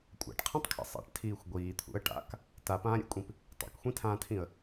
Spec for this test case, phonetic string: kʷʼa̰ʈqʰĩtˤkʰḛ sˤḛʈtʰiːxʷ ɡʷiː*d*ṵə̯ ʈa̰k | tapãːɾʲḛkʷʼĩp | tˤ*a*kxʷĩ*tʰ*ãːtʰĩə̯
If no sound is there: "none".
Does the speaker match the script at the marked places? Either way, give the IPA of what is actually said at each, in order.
t̪ʰ, a̰, tʰ

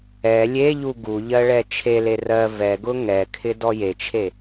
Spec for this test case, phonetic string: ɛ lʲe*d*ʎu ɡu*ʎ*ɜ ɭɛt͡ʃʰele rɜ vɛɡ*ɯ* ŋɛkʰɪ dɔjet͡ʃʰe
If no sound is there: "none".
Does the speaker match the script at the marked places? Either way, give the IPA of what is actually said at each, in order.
none, ʎ, ʊ

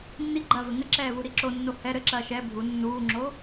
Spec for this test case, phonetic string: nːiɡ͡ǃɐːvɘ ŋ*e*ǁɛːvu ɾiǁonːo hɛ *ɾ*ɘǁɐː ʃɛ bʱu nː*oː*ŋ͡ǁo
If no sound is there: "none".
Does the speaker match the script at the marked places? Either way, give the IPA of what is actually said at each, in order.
ɘ, ɾ, uː

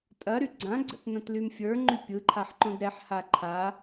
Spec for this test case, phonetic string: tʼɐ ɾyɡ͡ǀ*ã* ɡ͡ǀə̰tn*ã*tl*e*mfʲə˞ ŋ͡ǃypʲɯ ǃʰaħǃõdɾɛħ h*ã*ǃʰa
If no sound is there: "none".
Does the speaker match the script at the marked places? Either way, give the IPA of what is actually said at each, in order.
ã, ɐ̃, y, a

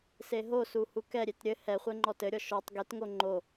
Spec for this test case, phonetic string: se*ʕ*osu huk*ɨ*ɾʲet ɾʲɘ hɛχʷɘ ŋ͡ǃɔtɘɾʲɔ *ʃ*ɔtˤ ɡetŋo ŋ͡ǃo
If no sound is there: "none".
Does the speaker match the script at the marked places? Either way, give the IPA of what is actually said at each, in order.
ɦ, ɛ, ʃ

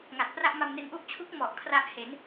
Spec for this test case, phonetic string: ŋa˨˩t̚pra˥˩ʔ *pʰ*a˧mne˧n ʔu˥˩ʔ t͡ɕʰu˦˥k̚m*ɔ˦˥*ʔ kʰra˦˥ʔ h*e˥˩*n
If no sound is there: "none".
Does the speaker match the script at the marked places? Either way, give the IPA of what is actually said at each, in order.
m, ɔ˨˩, e˩˦

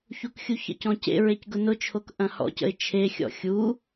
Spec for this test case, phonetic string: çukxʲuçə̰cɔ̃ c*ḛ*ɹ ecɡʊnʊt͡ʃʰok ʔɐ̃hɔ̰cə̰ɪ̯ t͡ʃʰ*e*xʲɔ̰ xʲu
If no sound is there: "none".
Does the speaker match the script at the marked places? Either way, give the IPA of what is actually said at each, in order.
ḛ, e

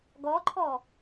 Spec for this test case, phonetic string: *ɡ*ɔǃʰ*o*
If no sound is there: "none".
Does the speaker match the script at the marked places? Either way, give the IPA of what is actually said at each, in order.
ɡ, ɔ

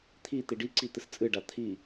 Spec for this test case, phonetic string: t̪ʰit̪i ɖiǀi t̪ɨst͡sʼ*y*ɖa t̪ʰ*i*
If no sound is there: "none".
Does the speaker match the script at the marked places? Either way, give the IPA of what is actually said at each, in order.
ɨ, i

